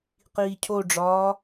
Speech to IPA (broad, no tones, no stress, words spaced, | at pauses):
qiːcʰoɖ͡ʐɒː